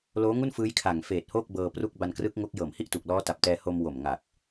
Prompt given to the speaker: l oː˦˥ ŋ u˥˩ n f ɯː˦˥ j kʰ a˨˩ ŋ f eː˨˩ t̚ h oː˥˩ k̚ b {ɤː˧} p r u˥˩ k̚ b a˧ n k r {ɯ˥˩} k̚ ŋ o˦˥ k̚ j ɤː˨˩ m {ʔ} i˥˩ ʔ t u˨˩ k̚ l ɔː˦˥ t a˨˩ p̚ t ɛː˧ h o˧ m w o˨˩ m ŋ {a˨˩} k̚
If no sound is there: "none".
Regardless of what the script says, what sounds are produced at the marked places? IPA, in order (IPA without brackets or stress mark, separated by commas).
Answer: ɤː˧, ɯ˦˥, h, a˨˩